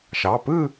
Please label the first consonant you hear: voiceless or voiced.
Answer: voiceless